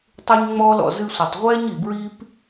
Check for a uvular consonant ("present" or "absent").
present